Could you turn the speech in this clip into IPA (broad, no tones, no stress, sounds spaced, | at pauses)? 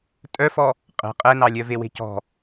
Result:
tʼ œ f ɔ | qʼ ɛ̤ qʼ ɛ n ɑ lʲ œ v e w e̤ c ɔ̤